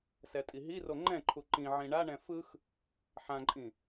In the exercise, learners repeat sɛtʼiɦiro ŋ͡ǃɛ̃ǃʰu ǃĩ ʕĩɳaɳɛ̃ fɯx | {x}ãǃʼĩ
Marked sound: incorrect: ħ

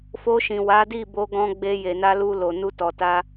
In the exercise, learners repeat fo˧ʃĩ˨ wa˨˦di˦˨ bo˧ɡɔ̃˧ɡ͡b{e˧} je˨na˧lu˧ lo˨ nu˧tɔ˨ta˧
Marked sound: correct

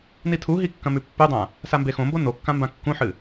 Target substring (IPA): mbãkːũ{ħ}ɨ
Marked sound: correct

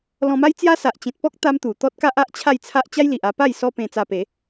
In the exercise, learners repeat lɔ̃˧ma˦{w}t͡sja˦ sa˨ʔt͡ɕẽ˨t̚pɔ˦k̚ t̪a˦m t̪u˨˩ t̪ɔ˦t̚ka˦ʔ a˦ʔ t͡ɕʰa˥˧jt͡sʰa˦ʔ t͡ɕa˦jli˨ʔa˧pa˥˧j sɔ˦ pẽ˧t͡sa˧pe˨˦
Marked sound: incorrect: j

